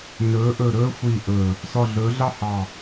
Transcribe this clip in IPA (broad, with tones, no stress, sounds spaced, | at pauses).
n ɵː˩˧ ʔ ɵː˨˩ ɾ ɵː˧ xʷ iː˨˩ ʔ ɵː˨˩ | s ɔ˨˩ ɮ ɵː˩˧ ɮ ɑ˧ h ɑ˨˩